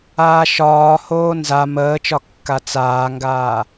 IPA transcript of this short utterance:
aː ʃ ɒː h oː n z a m əː t͡ʃ ɒ kː a t͡s aː ŋ ɡ aː

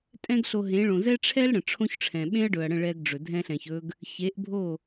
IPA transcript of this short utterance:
tʼ ɛ̃˦ ɡ ɬ o˧ ɦ ẽ˨˦ ɭ õ˨ z ɛ˦ ʈ͡ʂʰ ɛ˦ l ɽ ə̃˨ ʈ͡ʂʰ õ˦ ç ʈ͡ʂʰ ɛ̃˨ ɓ ẽ˦ ɐ̯ ɖ ɵ˨ ɐ̯ ɽ ə̃˦˨ ɭ ɛ˧ ɡ ɖ͡ʐ ɵ˨ dʱ ɛ̃˧ ɬ ɛ̃˨ ç ɵ˧ ɡ | ç e˨˦ ʔ bʱ o˦˨

